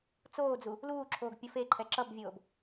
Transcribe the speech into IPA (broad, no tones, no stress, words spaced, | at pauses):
t͡soːd͡zu | luːǁʰoːɡ pʲʌfeǃʰɛ ǁʌbvʲoːb